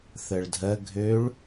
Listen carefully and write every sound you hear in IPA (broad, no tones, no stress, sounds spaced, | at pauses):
θ ɜ ɭ dʱ ɜ ɡʱ ø ɭ